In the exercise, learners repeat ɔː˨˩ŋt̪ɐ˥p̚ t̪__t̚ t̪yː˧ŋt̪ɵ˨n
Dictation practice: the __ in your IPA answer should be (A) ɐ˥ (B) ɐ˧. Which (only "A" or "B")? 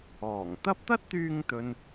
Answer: A